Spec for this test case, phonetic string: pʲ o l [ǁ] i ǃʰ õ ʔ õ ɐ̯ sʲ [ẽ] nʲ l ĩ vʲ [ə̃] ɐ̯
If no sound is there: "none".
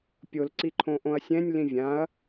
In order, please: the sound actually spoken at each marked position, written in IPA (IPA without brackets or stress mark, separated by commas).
ǀ, ɛ̃, ã